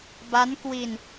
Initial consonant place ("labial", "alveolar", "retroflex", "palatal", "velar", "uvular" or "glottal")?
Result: labial